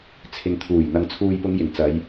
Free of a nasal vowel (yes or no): yes